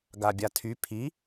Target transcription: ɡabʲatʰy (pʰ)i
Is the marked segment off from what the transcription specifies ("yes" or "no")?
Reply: no